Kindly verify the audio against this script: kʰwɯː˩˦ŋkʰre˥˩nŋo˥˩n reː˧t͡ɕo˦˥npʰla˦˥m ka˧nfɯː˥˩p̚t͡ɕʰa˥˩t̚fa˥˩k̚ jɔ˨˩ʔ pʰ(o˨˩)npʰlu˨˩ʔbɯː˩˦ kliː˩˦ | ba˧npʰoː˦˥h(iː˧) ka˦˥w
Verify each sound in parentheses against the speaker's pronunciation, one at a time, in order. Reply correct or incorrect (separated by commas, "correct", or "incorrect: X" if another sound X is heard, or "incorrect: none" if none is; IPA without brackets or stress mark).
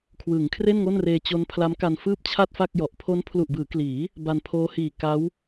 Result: incorrect: o˦˥, incorrect: iː˨˩